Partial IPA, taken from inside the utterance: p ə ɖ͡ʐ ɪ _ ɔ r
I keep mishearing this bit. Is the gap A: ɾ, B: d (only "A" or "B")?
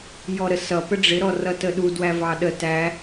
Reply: A